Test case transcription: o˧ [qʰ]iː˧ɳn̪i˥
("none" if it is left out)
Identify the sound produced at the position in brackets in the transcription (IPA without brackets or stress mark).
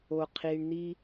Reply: qʰ